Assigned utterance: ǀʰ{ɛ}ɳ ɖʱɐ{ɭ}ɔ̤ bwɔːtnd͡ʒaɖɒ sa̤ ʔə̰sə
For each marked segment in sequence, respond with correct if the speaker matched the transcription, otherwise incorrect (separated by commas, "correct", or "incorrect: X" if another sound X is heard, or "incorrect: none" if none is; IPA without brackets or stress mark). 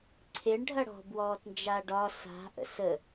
incorrect: e, incorrect: ɽ